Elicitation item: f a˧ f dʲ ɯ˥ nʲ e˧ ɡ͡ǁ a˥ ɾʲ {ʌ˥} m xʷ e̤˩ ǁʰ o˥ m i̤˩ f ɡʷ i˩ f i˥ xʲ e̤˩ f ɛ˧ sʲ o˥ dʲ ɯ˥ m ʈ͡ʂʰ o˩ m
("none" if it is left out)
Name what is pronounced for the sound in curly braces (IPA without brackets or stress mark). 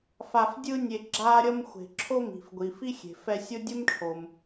ʌ˥